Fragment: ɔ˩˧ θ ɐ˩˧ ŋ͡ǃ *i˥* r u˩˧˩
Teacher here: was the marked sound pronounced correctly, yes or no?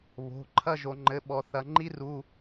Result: yes